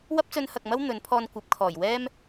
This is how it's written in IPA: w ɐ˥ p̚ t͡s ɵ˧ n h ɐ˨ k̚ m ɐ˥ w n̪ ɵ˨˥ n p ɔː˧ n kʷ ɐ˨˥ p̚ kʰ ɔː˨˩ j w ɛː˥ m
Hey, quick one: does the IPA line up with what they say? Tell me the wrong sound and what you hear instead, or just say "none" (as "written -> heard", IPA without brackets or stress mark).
p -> pʰ